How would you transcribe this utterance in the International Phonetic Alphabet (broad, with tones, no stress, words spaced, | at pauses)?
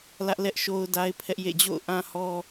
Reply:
lä˦ʔlɛ˦ʔʃo˦ʊ̯ da˦ɪ̯pʰɛ˦ʔjḛ˦˨ d͡ʑo̰˦˨ʊ̯ʔã˦hɔ˦